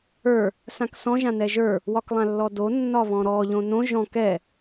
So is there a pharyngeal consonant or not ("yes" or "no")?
no